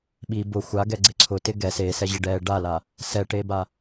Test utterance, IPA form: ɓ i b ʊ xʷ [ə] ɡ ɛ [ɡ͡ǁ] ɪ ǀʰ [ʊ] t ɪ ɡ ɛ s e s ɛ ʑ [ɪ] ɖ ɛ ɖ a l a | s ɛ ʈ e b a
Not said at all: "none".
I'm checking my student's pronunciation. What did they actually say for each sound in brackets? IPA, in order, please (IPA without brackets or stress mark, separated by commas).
a, ɡ͡ǀ, ʊ, ɪ